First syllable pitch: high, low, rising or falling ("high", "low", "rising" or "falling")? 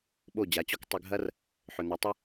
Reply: falling